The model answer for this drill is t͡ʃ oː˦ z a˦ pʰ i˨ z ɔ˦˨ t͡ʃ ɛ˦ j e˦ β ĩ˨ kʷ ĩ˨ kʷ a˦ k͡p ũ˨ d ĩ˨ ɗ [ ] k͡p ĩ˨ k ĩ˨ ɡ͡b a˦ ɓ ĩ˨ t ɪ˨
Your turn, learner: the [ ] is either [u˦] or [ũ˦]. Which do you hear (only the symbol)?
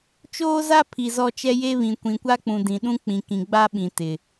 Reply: ũ˦